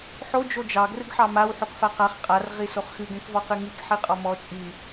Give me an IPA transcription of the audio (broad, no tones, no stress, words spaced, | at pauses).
ħo d͡ʒod͡ʒɑ ɡrɨɡħɑmaw ħokfaqaχ qʼar ʁisoχxɨ ɡɛ̃kvɔqɨŋik ħiqʼɔmɔ t͡ʃʼi